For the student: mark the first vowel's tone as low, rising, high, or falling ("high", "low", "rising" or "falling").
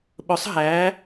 rising